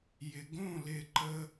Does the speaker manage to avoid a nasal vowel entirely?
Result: no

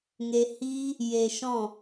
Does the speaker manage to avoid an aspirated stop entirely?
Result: yes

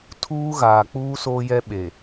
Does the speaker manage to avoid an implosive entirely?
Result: no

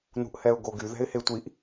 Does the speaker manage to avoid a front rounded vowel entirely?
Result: no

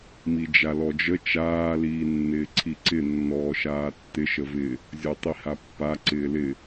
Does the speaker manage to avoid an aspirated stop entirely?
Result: no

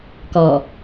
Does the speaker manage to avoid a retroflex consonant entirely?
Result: yes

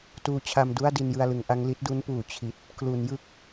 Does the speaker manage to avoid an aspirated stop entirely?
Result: no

